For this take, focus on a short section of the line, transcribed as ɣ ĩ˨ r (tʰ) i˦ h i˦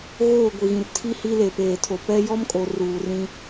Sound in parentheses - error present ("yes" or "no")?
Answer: no